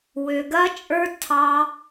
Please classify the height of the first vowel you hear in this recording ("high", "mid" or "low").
mid